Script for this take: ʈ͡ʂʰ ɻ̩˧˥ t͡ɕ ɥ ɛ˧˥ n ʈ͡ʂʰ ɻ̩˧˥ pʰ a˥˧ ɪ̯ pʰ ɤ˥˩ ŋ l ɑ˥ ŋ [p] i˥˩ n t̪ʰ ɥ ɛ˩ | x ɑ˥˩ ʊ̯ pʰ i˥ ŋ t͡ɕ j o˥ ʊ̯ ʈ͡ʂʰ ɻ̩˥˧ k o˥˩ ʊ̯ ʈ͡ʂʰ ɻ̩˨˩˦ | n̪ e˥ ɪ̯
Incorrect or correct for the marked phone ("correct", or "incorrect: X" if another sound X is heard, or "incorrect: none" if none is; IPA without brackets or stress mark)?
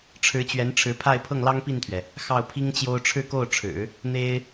correct